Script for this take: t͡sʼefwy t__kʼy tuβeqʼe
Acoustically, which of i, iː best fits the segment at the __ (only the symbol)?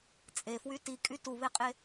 i